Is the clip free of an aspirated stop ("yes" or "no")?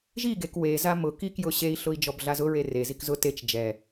yes